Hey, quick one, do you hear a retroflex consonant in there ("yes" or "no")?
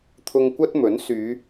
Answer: no